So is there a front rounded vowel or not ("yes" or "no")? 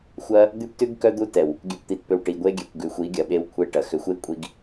yes